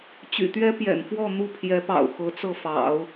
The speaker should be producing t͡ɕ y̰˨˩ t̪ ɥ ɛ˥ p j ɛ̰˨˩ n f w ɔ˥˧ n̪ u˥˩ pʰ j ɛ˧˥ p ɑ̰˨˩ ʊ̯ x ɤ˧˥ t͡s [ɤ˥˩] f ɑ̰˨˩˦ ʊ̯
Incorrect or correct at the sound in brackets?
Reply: correct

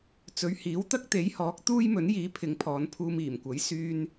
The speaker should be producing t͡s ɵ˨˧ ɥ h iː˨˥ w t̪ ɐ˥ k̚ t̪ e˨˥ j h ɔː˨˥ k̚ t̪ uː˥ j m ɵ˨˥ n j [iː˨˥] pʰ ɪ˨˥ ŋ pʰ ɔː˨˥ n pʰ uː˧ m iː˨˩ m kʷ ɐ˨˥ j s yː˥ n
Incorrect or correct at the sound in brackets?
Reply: correct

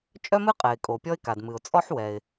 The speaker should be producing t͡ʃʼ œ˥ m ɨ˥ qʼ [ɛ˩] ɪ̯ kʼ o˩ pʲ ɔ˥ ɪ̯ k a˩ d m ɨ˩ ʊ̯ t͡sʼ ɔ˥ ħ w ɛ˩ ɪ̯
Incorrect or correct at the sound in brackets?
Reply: correct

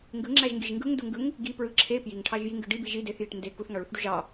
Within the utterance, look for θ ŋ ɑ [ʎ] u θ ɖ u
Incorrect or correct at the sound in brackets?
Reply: incorrect: ɭ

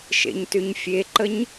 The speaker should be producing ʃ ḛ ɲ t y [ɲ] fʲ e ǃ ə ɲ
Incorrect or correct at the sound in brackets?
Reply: correct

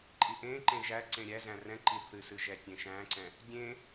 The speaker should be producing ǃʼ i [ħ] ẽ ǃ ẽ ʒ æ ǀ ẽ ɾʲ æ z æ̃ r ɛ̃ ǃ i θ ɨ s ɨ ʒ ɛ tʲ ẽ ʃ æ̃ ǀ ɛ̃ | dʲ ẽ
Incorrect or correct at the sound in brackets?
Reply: incorrect: ʔ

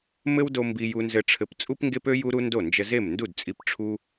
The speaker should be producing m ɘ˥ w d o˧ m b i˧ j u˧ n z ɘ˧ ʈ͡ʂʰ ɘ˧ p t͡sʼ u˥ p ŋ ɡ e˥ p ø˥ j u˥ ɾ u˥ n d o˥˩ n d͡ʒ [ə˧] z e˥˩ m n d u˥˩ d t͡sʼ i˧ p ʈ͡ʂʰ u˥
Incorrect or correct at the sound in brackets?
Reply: correct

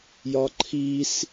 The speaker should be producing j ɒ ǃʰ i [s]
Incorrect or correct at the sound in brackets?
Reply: correct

